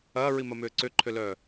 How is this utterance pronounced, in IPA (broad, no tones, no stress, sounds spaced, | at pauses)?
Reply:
ɐː ɹ i m ɐ m ʏː ǀ ʏ ǃʰ ʏ l œː